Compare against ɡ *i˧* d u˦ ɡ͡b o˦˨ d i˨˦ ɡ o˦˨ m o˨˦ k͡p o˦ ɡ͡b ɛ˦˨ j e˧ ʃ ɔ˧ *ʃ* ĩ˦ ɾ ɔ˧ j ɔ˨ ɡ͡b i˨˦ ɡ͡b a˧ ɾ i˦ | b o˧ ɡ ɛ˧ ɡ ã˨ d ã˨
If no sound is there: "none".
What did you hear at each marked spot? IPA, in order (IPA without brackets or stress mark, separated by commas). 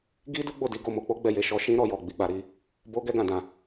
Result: i˦, ʃ